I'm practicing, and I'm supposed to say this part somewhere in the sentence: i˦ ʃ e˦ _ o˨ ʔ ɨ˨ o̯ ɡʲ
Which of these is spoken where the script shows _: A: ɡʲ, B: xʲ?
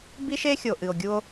B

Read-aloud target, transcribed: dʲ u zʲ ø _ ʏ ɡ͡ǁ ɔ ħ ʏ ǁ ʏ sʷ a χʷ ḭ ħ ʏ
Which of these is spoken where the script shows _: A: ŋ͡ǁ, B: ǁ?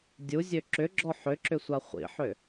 B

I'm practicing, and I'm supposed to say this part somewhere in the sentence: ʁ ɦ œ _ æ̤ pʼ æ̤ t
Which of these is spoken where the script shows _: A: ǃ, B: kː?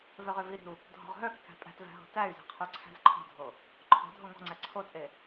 B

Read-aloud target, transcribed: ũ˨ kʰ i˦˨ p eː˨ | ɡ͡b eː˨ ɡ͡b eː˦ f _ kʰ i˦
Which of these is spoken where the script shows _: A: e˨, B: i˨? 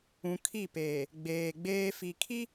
B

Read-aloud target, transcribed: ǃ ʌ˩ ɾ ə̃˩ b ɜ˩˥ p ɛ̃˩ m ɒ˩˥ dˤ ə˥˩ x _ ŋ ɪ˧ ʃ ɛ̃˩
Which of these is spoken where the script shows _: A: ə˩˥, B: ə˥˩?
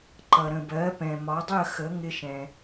A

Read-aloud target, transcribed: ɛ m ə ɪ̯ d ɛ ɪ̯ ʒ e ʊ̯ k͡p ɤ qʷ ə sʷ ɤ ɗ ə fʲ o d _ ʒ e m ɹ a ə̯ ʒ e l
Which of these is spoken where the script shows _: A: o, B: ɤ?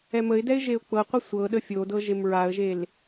B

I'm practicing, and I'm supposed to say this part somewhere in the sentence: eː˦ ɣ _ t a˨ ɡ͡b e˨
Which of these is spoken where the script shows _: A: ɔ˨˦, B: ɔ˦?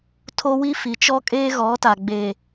A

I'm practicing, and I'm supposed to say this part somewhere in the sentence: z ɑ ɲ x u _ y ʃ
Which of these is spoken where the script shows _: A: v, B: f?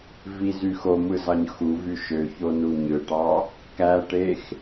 A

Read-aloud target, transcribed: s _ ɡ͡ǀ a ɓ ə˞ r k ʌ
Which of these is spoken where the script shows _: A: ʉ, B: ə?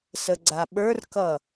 B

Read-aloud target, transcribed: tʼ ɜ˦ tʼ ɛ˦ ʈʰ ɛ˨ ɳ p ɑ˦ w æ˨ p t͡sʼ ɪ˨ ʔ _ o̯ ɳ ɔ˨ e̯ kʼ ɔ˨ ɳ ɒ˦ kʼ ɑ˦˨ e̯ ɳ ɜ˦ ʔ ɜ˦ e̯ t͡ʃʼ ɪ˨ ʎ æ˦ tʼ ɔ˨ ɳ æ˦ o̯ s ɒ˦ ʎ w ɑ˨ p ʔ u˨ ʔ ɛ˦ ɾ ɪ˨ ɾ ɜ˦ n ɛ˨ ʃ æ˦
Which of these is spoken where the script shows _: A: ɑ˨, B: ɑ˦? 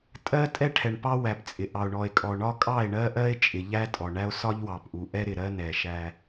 A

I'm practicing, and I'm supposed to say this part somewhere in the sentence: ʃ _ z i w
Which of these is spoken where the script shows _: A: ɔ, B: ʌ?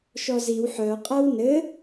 A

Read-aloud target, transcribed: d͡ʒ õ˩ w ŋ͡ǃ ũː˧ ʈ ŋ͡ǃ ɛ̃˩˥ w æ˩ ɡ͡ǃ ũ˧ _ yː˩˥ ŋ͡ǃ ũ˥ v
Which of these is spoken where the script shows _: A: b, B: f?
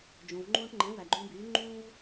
A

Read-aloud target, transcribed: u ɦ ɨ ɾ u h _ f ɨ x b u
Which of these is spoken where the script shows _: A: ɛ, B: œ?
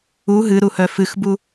B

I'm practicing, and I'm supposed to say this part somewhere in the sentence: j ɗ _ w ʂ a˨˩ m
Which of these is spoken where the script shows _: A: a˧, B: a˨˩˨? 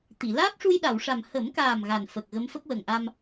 B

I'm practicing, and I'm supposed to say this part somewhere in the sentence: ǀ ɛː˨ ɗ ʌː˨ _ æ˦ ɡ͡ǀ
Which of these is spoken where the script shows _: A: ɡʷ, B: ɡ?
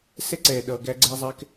B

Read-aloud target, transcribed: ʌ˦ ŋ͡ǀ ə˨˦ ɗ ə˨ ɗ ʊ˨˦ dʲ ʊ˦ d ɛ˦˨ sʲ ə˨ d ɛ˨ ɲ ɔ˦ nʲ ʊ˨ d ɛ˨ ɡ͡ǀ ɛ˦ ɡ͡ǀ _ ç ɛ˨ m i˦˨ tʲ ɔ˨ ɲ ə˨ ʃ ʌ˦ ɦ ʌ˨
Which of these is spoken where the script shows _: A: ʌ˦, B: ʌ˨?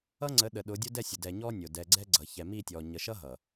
B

